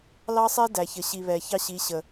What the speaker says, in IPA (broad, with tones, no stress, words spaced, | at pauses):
lɑ˦sˤɛ˦ dæ˨çə˨ ɕi˨βɛ˨ çɑ˦ɕi˨˦ɕə˨